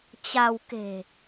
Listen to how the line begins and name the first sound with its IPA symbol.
t͡ɕ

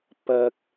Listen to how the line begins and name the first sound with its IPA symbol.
p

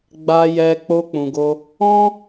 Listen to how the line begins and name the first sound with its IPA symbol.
ɡ͡b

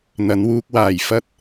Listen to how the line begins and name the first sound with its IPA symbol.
n̪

